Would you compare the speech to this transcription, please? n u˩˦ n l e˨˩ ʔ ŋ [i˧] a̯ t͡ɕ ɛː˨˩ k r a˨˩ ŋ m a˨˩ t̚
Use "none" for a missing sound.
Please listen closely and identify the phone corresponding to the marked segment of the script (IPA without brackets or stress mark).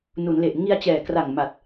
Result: i˧